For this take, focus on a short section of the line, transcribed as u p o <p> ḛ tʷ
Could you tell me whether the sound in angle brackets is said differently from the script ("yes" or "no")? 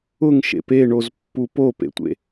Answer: no